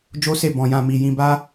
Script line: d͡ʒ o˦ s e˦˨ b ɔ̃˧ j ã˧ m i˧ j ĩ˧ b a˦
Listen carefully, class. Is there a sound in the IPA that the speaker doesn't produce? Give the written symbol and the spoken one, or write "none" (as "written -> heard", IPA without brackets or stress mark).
none